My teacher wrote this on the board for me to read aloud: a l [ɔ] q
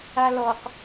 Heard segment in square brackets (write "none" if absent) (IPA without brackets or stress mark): ɔ